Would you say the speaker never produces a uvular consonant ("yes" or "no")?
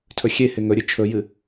yes